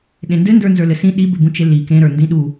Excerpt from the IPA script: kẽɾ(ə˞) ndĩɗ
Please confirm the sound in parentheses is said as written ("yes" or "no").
yes